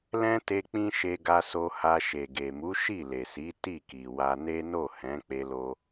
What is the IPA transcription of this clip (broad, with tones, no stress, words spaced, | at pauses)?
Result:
lɛ̃˦ te˧ k͡pĩ˦ ʃe˧ɡa˧so˧ha˧ ʃe˨ɡe˨mu˨˦ ʃi˦˨le˨si˨˦ ti˦˨ki˨wa˧ ne˦ no˦˨hɛ̃˨˦ k͡pe˦lo˦